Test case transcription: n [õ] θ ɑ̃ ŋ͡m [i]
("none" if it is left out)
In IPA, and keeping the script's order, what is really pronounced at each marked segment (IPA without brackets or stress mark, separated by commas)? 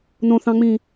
õ, ĩ